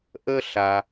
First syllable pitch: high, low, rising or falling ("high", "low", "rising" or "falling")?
high